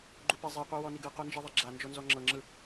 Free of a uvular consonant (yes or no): no